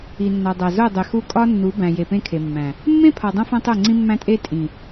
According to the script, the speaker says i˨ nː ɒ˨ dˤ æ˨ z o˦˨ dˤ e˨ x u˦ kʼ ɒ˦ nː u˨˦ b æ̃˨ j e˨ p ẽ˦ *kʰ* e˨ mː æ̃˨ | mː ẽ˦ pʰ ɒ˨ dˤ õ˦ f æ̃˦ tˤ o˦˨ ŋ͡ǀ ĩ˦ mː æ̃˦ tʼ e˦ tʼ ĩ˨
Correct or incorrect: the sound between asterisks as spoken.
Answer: correct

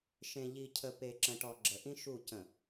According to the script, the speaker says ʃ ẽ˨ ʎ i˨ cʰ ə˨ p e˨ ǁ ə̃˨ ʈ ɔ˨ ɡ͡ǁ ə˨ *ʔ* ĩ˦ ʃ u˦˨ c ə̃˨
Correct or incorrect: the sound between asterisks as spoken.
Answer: correct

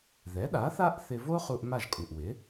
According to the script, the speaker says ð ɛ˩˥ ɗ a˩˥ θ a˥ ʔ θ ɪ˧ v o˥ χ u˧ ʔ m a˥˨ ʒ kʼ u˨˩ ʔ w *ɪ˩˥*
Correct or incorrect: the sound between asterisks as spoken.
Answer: correct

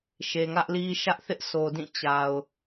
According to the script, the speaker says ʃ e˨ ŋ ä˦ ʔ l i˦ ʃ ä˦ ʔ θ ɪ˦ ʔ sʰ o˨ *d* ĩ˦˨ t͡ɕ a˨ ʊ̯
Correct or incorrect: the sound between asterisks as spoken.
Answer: correct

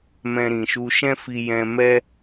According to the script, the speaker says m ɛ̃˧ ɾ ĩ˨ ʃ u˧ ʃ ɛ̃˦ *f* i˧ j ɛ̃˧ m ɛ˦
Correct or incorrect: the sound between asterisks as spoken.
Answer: correct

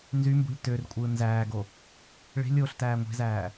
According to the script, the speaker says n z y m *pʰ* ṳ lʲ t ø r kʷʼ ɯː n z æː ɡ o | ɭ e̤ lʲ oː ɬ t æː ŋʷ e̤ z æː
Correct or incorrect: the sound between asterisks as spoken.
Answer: incorrect: b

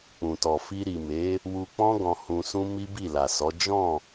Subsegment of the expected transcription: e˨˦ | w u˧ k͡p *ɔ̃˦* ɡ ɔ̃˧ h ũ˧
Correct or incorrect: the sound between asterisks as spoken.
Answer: correct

